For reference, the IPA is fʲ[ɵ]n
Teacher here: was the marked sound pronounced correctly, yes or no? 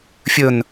yes